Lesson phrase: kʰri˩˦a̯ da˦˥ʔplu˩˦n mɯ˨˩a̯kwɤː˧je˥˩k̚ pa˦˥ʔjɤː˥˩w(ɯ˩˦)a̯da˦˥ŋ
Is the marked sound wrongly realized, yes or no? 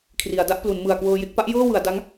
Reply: no